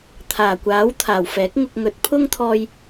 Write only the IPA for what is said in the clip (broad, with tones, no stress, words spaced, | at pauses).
t̪ʰaː˨˩kʷaː˨˥w t̪ʰaː˨˩wfɛː˨˥k̚ŋʊ˧k̚ŋɵ˨˥t̚ pʰʊ˥ŋt̪ʰɔː˧j